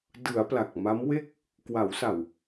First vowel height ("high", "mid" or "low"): high